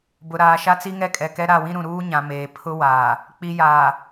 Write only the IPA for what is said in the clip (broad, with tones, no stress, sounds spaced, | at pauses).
b ʊ˨ ɾ aː˨ ʃ a˦ t͡s i˦ ŋ ɛ˦ kʼ ɛ˨ k ɛ˦ ɾ a˦˨ w ĩ˦ ɾ ũ˨ ɾ uː˦ ɲ ã˨ m eː˨ pʰ ʊ˦ w aː˨ | k͡p i˨ j aː˨